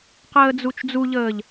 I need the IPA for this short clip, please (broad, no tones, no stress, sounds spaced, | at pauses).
q əː d͡z u t͡ʃ d͡z u ʎ əː ʎ